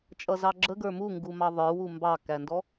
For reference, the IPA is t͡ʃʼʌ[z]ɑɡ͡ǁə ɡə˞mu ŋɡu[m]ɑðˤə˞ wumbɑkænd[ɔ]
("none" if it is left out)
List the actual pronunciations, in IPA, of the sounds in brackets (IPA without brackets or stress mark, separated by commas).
z, m, ɔ